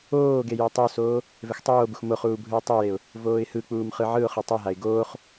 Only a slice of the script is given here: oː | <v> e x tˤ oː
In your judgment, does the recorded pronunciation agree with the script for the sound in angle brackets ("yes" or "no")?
yes